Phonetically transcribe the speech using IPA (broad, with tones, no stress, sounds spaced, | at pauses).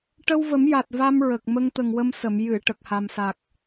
ʈ ə˧ w v ə˨˩˦ m j a˨˩ t̚ v a˧ m ɹ ə˨˩ k̚ m ə˧ ŋ t̪ ə˨˩ ŋ w ə˧ m s ə˨˩˨ m j ɨ˨˩˨ ʈ ə˨˩ k̚ h a˨˩ m s a˨˩ k̚